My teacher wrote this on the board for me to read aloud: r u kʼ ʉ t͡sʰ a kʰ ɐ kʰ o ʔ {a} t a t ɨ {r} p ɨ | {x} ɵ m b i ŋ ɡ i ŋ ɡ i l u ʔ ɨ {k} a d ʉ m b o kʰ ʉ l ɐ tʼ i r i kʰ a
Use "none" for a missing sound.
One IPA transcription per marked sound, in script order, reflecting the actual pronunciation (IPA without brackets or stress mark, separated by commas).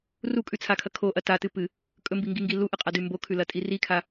ɐ, none, kʼ, qʼ